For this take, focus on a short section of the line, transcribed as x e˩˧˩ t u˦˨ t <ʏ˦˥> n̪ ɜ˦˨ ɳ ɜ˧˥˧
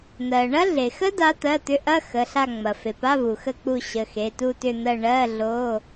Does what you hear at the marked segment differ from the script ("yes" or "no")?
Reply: yes